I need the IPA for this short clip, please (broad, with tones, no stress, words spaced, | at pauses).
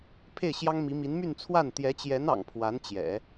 pʰe˥˩ɪ̯ɕjɑ˥ŋmi˧˥mi˧˥n my˥˧nt͡sʰwa˥˩n t̪jɛ˧˥t͡ɕjɛ˧˥nɑ̰˨˩ŋ pʰwa˧˥nt͡ɕjɛ̰˨˩˦